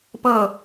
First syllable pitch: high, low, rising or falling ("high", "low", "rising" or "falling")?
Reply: falling